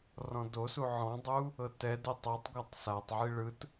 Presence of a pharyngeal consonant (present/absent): present